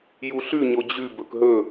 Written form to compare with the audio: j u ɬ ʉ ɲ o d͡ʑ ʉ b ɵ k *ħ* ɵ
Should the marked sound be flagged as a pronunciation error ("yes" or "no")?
yes